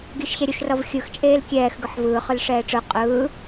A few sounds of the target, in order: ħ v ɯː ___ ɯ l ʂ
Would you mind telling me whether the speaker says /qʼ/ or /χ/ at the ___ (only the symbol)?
χ